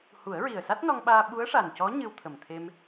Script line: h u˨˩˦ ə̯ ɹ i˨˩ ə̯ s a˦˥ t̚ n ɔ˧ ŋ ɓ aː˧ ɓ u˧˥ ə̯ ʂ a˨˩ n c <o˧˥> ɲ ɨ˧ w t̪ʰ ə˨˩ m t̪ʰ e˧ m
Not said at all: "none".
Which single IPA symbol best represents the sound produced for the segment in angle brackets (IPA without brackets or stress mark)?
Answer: ɔ˧˥